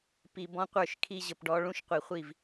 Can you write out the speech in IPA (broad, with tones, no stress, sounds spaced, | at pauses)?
p i˨ b ɔ̃˦ qʷ ə˞˦˨ ʃ kʰ i˦ ʑ ə˨ p ɖ ɔ˦ ɭ ũ˦ ʃ qʷ i˨ χʷ i˦˨ v